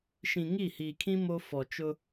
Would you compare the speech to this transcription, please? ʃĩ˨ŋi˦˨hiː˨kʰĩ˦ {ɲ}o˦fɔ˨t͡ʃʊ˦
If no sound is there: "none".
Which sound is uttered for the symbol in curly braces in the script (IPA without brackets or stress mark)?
m